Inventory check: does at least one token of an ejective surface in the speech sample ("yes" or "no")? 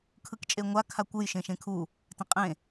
yes